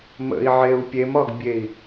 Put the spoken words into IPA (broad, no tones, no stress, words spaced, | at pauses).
mə̰i̯ʕeu̯ pʲemɒɡbʲei̯